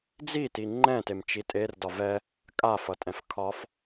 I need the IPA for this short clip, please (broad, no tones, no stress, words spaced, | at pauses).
d͡ziti ŋ͡ǃɛ̃temt͡ʃi tʼerdɒ vɛ | kʼafʌtʼɛ̃f kʰɒf